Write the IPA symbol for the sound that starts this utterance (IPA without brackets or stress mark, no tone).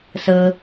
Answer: s